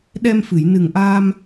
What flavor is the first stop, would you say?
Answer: implosive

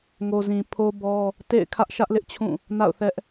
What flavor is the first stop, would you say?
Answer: aspirated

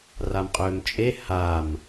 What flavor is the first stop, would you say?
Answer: ejective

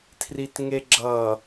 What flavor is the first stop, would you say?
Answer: aspirated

